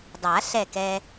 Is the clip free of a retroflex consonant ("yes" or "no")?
yes